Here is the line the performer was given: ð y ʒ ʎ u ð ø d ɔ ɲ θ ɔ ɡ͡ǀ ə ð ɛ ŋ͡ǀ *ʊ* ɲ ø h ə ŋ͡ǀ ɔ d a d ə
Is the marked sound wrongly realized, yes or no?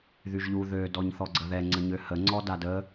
yes